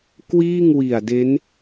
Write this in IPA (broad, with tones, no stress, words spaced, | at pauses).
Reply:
kwiː˥˩ŋwi˨˩a̯de˦˥n